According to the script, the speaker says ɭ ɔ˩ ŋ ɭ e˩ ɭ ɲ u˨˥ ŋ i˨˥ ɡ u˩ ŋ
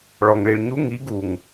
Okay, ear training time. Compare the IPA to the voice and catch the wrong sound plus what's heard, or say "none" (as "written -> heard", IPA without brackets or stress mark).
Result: e˩ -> i˩